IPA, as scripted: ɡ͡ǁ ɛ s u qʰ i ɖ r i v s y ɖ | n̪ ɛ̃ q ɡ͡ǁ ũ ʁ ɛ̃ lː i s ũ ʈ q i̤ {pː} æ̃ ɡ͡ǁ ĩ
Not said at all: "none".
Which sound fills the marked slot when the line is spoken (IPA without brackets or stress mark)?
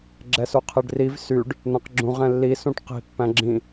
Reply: pː